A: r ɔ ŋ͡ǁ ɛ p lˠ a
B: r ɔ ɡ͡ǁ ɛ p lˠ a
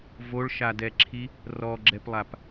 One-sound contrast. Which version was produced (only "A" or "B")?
B